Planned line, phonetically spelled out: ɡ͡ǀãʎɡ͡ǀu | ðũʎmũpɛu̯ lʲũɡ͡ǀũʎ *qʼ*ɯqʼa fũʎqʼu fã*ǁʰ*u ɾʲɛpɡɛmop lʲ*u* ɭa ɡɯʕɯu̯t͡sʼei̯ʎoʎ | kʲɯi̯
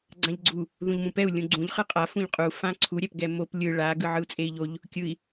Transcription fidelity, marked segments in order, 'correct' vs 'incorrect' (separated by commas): incorrect, incorrect, incorrect